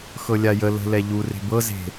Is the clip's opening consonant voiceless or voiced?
voiceless